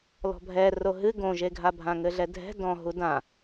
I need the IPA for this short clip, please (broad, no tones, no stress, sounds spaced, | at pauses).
l ɔ̤ bʱ ɛ r o ɦ ɨ ɡ õ ʒ e ɡʱ a bʱ ã ŋ ɘ ɮ ɛ dʱ ɛ̤ d ɔ̃ ɦ u d ã